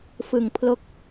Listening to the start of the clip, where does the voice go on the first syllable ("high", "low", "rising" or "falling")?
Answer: low